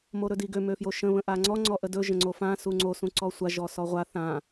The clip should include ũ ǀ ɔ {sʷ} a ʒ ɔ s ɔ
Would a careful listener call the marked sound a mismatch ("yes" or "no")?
no